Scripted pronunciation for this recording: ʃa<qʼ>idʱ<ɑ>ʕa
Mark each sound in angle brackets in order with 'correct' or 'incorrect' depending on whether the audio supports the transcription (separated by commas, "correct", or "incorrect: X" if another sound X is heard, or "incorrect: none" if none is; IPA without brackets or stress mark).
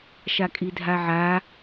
incorrect: kʼ, incorrect: a